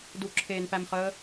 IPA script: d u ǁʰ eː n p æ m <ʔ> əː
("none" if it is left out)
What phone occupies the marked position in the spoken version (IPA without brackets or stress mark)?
χ